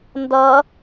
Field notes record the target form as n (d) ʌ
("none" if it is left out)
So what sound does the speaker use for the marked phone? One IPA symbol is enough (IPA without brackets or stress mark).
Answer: d